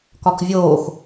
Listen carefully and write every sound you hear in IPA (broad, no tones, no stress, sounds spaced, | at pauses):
k ɒ k vʲ oː x